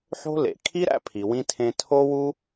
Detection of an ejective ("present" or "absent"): absent